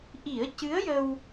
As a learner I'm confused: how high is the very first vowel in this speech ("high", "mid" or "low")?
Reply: high